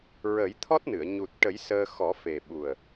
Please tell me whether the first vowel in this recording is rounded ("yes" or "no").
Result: no